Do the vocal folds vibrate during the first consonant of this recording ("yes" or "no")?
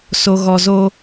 no